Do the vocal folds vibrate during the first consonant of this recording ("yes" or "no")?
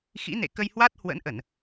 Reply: no